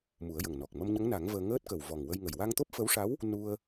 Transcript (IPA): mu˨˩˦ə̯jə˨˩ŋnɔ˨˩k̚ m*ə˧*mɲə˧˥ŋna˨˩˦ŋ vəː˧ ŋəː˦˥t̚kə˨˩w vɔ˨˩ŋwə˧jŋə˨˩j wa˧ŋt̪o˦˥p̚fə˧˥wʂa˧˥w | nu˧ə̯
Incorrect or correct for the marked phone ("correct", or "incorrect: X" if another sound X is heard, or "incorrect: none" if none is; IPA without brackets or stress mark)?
correct